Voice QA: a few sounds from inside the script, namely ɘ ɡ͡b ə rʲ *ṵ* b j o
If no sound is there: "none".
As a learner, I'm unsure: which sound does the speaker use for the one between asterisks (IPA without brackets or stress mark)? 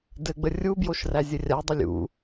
u